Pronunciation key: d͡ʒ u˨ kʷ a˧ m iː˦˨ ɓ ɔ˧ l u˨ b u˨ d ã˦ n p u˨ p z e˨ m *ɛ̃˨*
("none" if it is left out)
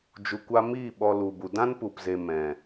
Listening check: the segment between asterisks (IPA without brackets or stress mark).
ɛ̃˨